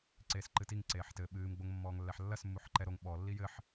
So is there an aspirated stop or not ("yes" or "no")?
no